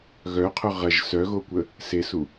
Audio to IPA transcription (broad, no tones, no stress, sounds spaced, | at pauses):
ɣ œ qʰ œ ʁ ɐ ʒ s œ ɣ o kʷ ə | s e s u